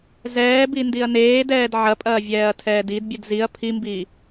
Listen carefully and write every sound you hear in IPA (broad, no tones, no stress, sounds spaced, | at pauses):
z ɛː b i n d i ɐ̯ n eː d ɛː d ʕ ɐ pʼ ɐː vʲ ɛː ɐ̯ tʰ ɛː d i d bʲ ɨ d z i ɐ̯ pʰ i m b iː